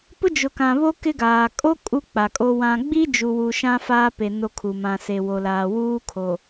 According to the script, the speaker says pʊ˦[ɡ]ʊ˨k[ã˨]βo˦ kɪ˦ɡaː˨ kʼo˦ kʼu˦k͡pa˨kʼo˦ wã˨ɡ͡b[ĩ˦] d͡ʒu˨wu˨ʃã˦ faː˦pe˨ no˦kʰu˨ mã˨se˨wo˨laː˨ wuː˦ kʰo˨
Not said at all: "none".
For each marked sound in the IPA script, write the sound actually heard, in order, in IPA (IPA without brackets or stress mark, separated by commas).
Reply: d͡ʒ, ã˨, i˦